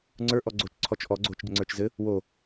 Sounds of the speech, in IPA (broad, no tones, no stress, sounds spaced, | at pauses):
ŋ͡ǀ ə˞ ʔ ɔ ɡ͡ǀ oː t͡ʃ ǀʰ ɔ t͡ʃ ʔ ɔ ɡ͡ǀ oː t͡ʃ ɟ ɘ ŋ͡ǀ ə˞ t͡ʃ z ɘ | w o